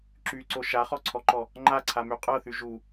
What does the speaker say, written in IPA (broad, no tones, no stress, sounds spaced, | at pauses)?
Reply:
ǁ y ǀ o ʃ a χ ɔ ǀʰ ɔ ǃ ɔ | ŋ͡ǃ a ǀʰ a m y qʼ ɤ θ y ʒ u